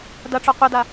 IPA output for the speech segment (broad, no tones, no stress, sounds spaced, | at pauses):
d ɐ ʈ͡ʂ ɔ qʷ ɐ d a